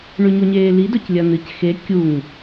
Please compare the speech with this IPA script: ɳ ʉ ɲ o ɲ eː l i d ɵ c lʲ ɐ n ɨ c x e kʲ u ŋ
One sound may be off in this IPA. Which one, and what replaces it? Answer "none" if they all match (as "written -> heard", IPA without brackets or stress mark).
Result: none